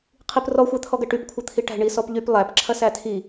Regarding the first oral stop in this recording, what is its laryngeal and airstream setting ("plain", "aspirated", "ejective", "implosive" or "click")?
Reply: aspirated